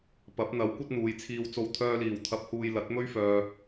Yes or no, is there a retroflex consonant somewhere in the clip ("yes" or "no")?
no